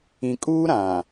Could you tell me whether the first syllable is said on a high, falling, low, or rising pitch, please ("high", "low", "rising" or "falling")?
low